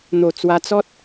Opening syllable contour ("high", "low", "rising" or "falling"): low